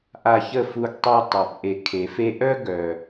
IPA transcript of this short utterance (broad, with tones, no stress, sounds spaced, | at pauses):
ʔ a˧ ç ə˦˨ f u˧ ɡ tˤ y˧ tˤ œ˨ p ʔ e˨ kʰ e˨ f e˧ ʔ œ˦ ɡ œ˨